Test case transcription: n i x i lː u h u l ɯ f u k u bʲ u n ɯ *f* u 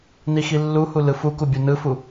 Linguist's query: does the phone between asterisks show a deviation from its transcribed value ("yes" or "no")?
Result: no